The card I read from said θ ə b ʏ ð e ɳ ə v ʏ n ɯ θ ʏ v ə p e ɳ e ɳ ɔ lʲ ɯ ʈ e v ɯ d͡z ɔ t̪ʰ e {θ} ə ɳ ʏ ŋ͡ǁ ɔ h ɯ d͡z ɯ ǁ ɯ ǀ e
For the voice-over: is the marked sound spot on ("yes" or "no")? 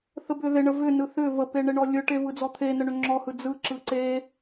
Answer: no